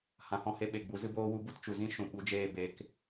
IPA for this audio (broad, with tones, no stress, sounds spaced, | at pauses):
h ã˨ h ɔ̃˧ h e˧ ɓ e˨ ɡ͡b u˨˦ z ɨ˦ b oː˦ w u˦ b u˦ t t͡ʃ u˨ z ĩ˦ ʃ ũ˨ ɓ u˨˦ d͡ʒ eː˦˨ b e˧ k